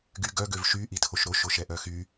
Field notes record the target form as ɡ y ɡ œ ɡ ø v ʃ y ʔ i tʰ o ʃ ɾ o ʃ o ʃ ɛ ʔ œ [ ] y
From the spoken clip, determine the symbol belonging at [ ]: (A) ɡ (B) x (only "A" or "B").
B